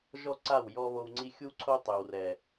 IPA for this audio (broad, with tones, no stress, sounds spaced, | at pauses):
ʒ ɔ˦ ǀ a˦˨ w j ɔ˧ β o˧ w ŋ͡ǀ i˦ xʲ u˦ ǀʰ o˦ tˤ ø˨ w r ɛ˨